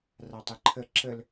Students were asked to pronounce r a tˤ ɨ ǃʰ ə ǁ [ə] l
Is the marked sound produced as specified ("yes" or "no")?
yes